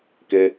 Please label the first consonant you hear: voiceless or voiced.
voiceless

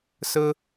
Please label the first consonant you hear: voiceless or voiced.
voiceless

